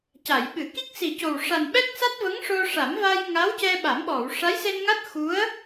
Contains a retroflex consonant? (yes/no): yes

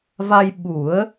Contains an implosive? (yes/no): yes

